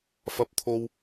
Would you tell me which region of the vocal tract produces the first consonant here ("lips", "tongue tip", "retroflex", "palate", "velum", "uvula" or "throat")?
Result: lips